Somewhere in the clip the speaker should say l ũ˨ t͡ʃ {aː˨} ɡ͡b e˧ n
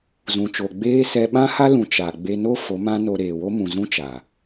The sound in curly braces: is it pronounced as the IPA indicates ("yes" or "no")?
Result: no